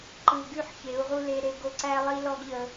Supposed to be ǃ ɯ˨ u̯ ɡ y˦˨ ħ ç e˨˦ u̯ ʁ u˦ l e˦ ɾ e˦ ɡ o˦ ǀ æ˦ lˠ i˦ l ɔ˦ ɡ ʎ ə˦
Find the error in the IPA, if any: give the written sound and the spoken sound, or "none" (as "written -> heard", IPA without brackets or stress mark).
none